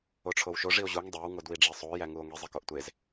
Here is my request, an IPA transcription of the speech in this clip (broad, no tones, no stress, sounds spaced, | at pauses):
o ʈ͡ʂʰ o w ʃ o ʐ i o̯ ʑ u ŋ dˤ e w ŋ o d w i ɖ͡ʐ i sˤ o j æ ŋ u o̯ ŋ i zˤ e k o ʔ tʷ e z